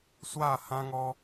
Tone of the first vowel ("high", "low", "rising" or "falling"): falling